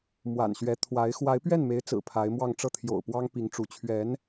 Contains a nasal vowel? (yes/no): no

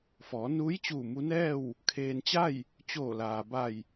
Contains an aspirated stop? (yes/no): yes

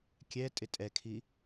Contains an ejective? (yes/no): yes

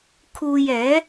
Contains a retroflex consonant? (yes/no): no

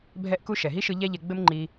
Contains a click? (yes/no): yes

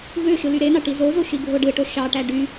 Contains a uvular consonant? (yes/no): no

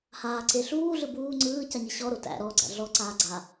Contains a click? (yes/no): yes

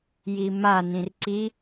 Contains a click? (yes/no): yes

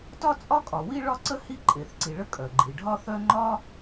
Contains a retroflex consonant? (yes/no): yes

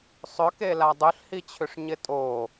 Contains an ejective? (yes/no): yes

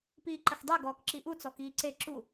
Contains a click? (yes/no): yes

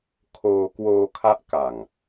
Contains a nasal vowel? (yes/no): no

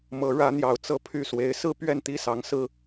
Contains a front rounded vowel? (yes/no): yes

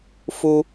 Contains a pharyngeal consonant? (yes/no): no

